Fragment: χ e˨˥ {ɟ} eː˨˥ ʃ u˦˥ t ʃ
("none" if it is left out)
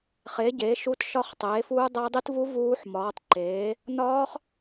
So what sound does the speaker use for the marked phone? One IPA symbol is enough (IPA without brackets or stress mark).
ɟ